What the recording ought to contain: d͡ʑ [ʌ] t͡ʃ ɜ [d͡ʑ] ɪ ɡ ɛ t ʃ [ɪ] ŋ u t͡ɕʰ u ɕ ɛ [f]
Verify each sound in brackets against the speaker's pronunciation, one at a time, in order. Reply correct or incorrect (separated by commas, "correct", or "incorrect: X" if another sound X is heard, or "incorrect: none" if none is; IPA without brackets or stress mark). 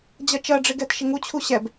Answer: correct, incorrect: ɖ͡ʐ, correct, incorrect: b